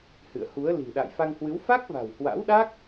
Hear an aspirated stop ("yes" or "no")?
no